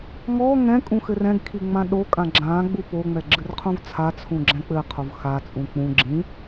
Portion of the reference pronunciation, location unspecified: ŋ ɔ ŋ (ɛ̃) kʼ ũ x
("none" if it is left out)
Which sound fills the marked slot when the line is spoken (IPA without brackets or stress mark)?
ɛ̃